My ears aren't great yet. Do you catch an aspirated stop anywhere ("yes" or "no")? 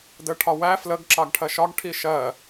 yes